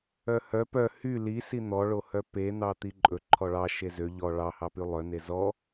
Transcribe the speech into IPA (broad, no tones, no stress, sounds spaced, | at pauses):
œ h œ p œ h y l i s i n̪ ɔ ɭ o h œ p e n̪ ɑ t̪ i ǃʼ ɵ ǃʰ ɔ ɭ ɑ ʃ e z ø ʎ ɔ ɭ ɑ h ɑ p y lˠ œ n e z ɔ